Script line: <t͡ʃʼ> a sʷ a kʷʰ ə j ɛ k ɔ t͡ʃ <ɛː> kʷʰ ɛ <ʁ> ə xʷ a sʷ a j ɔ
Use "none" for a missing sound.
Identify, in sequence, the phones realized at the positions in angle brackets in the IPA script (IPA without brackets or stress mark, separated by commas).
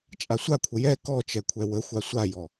t͡ʃʼ, ɛ, w